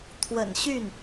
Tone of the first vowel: low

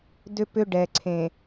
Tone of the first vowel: high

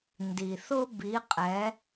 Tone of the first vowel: low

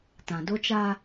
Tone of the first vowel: low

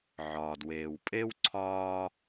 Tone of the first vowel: low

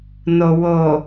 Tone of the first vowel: low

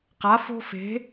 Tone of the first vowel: rising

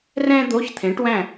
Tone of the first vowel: high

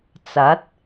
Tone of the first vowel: rising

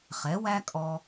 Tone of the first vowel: rising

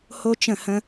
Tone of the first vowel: high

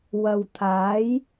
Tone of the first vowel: low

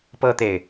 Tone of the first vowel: high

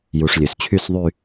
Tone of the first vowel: low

